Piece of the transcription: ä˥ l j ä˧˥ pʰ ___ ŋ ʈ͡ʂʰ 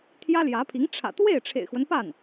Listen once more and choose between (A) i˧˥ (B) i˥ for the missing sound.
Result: A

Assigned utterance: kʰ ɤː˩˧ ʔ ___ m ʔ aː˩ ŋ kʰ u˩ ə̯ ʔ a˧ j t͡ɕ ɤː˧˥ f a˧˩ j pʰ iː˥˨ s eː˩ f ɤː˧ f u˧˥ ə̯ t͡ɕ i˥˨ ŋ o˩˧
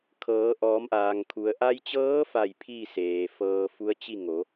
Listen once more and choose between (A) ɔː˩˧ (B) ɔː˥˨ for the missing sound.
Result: A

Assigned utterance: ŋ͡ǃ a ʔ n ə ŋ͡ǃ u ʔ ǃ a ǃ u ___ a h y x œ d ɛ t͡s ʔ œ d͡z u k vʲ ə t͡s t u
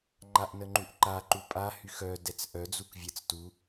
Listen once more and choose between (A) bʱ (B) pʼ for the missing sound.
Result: B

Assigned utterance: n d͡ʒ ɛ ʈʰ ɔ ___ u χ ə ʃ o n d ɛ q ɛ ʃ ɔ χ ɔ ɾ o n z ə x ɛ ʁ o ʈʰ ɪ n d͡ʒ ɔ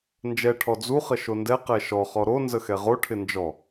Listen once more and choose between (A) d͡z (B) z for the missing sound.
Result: A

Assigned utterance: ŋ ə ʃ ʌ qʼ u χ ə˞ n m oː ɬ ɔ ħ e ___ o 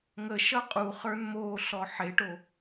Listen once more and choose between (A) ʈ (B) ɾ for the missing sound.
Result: A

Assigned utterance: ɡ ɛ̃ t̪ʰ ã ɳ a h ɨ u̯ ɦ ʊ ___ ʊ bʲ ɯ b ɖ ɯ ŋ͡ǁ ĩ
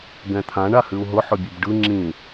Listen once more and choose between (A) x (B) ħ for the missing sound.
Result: B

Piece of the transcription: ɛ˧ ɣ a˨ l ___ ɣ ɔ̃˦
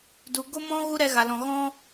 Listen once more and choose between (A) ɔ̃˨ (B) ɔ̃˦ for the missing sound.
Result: A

